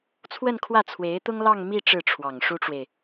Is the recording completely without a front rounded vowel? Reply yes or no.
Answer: yes